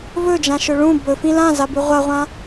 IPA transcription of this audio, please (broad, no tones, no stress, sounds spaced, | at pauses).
v ɵ d͡ʒ ã ʃ ɵ ɭ ũ b ɵ f ĩ l ã z a b ʉ ʁʷ a ʁʷ ã